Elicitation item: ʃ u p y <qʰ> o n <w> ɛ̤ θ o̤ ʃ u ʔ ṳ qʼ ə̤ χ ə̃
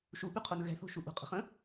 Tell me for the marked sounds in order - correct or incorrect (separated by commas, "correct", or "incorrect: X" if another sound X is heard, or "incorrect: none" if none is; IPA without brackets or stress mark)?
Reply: correct, incorrect: ɣ